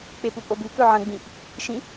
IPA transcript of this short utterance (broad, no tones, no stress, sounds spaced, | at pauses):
k͡p e p u pʼ o b ʉ k ɵ ʕ ɐ̃ ɡ͡b ĩ ʔ | ʃ ĩ